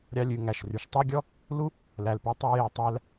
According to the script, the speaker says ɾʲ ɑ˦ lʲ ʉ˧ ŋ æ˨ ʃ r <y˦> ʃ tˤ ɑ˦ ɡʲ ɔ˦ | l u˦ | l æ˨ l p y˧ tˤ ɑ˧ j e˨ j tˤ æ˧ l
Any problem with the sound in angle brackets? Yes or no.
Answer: yes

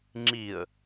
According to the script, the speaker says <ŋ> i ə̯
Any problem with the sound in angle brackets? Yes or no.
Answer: yes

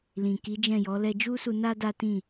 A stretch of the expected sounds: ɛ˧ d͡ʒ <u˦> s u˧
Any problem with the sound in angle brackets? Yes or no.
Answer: no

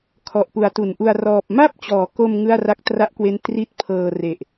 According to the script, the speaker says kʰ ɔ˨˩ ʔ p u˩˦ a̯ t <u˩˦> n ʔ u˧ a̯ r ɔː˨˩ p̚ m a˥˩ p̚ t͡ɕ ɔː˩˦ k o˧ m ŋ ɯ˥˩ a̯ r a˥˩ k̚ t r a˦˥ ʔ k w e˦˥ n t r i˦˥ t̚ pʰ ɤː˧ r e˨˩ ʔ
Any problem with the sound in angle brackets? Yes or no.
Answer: no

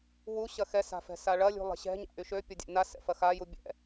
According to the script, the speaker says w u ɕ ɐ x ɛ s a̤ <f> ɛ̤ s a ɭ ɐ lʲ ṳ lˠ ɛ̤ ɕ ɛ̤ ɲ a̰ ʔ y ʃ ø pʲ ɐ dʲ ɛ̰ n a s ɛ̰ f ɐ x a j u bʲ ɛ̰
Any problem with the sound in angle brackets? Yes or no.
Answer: no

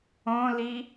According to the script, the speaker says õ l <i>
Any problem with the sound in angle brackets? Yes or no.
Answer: no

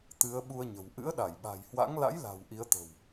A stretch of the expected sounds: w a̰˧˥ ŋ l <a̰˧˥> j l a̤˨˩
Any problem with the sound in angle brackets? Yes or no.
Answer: no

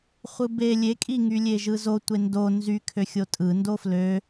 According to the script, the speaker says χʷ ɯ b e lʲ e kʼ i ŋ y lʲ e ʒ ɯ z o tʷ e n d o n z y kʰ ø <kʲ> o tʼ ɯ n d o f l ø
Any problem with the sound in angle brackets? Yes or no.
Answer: yes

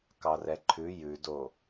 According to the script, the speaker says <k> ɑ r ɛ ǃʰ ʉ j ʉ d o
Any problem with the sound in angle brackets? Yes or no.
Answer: no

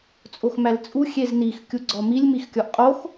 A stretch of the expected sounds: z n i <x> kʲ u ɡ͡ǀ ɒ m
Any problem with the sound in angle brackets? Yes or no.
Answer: no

